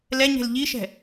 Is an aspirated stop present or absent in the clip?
absent